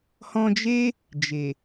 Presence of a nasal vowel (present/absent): present